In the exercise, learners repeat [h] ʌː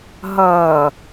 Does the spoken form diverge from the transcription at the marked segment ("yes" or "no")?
yes